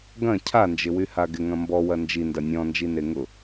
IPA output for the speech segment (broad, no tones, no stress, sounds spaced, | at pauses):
ɡ ɐ̃ cʰ a n d͡ʒ ɪ w y h a ɡ ɪ ŋ ɐ̃ m b ɔ w ɐ n d͡ʒ i n d ɐ nʲ ɔ̃ n d͡ʒ i n e ŋ ʊ